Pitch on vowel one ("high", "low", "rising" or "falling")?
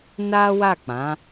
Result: high